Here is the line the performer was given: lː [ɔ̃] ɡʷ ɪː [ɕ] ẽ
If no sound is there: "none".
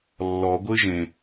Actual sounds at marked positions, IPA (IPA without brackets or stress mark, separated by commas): ɔ, ʒ